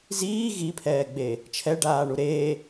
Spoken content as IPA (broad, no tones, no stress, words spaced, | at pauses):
ziː ɣipʰɛːɡ͡be | t͡ʃʰɛɖaːɳu ɾe